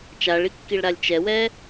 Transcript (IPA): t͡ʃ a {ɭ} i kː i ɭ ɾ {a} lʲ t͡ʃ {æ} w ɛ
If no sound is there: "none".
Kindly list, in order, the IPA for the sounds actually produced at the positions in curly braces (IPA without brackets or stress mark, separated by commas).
ɭ, a, ɛ